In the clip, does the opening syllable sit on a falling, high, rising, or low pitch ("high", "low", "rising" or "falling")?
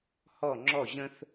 falling